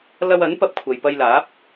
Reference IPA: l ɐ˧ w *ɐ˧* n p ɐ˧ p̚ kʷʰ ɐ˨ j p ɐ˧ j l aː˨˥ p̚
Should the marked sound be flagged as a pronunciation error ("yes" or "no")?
yes